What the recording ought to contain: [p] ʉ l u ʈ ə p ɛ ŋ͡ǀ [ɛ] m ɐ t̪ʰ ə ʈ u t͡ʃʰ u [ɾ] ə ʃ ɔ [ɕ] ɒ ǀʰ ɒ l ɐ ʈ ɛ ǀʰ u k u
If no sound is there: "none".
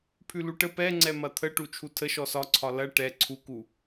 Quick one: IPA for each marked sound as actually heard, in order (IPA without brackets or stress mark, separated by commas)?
pʰ, ɛ, tʰ, s